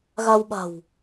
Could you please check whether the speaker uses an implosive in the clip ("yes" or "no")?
yes